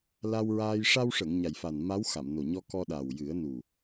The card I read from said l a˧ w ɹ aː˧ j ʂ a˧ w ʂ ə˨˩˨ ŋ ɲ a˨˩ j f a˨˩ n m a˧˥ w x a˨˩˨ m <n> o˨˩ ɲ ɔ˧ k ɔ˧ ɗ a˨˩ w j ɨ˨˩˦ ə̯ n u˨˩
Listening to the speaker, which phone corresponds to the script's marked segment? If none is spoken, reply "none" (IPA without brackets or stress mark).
n